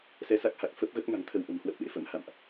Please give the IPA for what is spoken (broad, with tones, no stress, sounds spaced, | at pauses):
s ɛ˧ s a˦˥ k̚ h a˨˩ k̚ f ə˦˥ p̚ ɣ ə˦˥ p̚ ŋ a̤˨˩ ŋ t̪ʰ ə˧ w ʔ ə̤˨˩ m h w ə˦˥ p̚ ɗ ḛ˧˥ f ə̰˧˥ m h a̰˧˨ m ʔ